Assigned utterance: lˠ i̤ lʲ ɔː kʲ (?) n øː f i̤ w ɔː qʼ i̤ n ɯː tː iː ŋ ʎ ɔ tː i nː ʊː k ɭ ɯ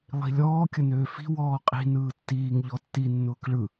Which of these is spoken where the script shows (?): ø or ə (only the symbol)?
ə